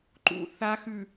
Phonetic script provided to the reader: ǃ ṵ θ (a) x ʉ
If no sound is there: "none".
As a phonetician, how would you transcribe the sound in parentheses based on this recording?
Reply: a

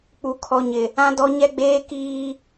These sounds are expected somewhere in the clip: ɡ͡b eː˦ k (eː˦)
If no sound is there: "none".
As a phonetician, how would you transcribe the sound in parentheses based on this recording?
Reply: iː˦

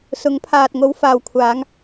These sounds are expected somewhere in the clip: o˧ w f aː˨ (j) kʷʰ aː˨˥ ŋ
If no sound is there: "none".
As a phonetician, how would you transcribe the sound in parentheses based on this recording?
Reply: w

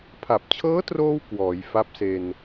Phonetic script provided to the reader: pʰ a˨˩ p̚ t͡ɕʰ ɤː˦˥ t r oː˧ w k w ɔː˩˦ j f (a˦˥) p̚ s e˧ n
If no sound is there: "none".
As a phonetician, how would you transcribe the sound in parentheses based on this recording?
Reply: a˦˥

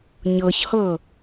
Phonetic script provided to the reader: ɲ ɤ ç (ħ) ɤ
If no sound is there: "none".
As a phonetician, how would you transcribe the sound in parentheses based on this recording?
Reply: h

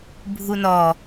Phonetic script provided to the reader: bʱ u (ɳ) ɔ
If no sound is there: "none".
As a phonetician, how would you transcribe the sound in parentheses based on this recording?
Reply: n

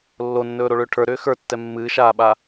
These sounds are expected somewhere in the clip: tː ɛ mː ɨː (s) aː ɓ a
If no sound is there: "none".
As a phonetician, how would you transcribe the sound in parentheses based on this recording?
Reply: ʃ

